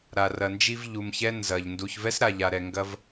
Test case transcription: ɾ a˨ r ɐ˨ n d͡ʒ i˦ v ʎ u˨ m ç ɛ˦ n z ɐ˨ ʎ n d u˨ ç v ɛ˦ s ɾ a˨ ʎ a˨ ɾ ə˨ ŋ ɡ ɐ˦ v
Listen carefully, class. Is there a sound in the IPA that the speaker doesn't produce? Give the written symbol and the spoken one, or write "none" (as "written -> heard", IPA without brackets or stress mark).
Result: ə˨ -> ɛ˨